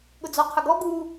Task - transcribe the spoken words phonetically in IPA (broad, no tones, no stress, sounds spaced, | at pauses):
ɠ ʊ d͡z ɔ qʰ ə ɡ ɔ ɡ u